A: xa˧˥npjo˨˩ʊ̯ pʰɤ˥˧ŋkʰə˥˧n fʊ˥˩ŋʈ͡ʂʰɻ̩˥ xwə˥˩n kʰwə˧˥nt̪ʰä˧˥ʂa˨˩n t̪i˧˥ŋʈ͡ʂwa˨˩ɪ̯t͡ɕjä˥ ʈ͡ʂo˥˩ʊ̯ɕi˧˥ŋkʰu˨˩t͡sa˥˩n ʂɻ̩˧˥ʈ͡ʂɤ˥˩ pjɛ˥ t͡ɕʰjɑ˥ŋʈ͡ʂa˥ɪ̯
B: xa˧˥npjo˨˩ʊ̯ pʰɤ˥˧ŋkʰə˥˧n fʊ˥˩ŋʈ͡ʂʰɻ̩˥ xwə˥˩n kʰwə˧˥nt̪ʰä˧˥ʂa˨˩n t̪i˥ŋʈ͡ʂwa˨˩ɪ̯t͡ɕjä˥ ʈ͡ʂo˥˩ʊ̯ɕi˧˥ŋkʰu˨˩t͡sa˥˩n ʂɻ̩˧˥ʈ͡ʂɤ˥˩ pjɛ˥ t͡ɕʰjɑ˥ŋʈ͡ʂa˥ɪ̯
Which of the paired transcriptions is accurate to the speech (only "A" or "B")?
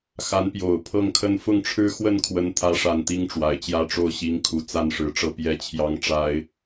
B